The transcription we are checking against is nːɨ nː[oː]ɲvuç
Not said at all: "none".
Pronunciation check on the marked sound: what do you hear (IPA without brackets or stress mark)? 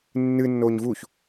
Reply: oː